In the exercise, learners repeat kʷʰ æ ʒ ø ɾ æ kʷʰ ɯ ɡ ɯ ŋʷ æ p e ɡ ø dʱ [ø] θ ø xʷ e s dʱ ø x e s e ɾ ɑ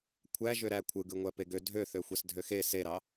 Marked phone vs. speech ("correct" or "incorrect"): correct